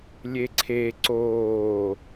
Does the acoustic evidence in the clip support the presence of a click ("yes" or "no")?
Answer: yes